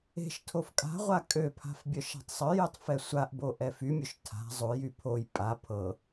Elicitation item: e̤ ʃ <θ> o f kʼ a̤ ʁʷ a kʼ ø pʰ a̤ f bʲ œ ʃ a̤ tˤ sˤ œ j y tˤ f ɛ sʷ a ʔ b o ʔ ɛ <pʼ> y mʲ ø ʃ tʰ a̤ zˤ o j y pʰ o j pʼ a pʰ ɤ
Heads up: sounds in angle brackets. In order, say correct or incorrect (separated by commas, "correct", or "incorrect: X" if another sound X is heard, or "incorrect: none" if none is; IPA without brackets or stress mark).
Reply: incorrect: tʰ, incorrect: f